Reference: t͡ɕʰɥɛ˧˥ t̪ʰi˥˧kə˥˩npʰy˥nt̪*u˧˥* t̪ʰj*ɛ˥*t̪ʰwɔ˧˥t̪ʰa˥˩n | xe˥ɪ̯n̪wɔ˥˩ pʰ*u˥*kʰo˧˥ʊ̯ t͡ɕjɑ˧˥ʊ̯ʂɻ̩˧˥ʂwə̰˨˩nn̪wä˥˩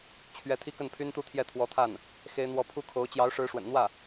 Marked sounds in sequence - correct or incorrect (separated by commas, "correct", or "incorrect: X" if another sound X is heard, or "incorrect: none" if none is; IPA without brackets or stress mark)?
incorrect: u˥˧, incorrect: ɛ˥˩, correct